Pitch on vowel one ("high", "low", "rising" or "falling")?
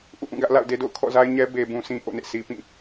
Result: falling